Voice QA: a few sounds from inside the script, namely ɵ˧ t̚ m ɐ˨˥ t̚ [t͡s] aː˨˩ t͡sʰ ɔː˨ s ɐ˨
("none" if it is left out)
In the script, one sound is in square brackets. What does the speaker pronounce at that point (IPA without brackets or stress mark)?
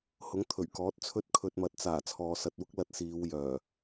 t͡s